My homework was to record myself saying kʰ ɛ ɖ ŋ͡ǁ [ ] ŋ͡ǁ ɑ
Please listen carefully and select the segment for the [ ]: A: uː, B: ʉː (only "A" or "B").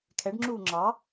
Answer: A